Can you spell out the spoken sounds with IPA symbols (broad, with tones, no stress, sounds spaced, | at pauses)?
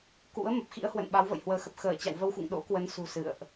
k ṵ˧˥ ə̯ m ə˨˩ p̚ x ḭ˧˥ ə̯ h w ə̰˧˨ n ɓ a˨˦ w v ə̰ː˧˨ j h w əː˨˦ x ə˨˩ p̚ x əː˧˩ t͡ɕ a̰˧˨ w v ə˧ w x ṵ˧˨ ŋ ɗ o̰˧˥ k w ə˨˦ n s ṳ˨˩ s ɨ̰˧˨ ə̯ ʔ